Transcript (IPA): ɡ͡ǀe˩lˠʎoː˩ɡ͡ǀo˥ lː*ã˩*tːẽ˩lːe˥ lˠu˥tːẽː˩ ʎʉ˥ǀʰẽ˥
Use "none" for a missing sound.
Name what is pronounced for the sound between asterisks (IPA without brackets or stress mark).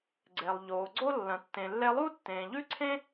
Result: ɐ̃˩